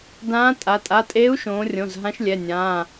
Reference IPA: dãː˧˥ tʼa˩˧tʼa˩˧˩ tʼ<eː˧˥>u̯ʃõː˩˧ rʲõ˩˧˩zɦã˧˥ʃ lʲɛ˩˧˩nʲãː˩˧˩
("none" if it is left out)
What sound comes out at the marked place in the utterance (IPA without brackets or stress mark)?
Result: eː˧˥